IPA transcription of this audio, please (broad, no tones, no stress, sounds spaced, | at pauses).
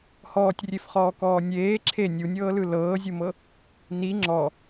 h ɔː tʲ rʲ e f χ ɔː k ɔː nʲ eː ǁʰ e nʲ u nʲ ɤː l ɯ l ɤː zʲ u m ɤ | n i ŋ͡ǁ ɔ